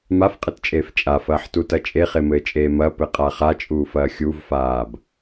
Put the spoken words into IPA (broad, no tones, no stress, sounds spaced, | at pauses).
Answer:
m a f qʼ ɘ t t͡ʃʼ eː f t͡ʃʼ a f ɐː ħ t u t ɐ t͡ʃʼ e χ e m ɘː t͡ʃʼ eː m ɐ p ɘ qʼ a χ a t͡ʃʼ uː f ɐː xʲ u v f aː b